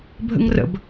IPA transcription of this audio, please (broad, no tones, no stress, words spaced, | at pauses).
bʱə̰ŋrə̰b